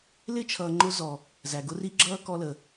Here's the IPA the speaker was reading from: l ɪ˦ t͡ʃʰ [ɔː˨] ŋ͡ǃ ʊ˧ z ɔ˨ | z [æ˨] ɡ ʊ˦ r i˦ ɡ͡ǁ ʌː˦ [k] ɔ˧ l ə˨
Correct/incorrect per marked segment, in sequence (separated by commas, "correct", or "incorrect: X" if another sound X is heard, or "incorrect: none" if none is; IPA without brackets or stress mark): incorrect: ʌː˨, correct, correct